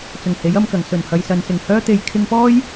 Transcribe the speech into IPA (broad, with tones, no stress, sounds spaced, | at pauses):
t͡s ʊ˨˩ ŋ h e˨˥ j ɐ˨˧ m k ɐ˨˩ ŋ s ɵ˨˩ n h ɐ˨ j s ɐ˨ n s ɪ˨˩ ŋ h œː˥ t̪ e˧ j kʰ ɪ˧ ŋ p ɔː˥ j